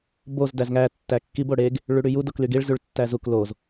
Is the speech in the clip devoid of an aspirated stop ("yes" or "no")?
yes